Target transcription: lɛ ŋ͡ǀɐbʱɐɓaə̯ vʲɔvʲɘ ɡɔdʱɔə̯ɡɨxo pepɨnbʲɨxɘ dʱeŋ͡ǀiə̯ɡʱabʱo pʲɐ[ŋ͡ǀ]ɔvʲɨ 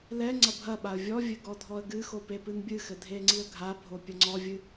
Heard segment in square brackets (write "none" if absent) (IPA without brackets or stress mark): ŋ͡ǀ